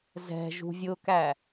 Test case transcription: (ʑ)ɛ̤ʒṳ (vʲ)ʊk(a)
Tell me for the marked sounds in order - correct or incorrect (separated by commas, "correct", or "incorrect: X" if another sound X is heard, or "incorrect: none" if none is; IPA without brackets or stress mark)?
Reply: incorrect: z, correct, incorrect: æ